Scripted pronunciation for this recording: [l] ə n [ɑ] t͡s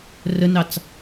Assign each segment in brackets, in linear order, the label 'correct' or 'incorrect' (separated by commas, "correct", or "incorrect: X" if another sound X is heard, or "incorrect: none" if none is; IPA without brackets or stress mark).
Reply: incorrect: r, correct